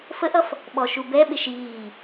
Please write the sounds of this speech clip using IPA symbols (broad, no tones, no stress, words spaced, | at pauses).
fəʔʌf | ɓɔʃubɛɓɪʃ iː